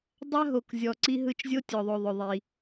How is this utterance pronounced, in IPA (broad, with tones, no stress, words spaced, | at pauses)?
dˤa˦ɦo˨kzʲɔ˨ ǀi˦ɦɯ˦t͡ʃ zʲo˦tʲɔ˨ðˤo˨ðˤɵ˨ ðˤi˦